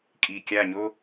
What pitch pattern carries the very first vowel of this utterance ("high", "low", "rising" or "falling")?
low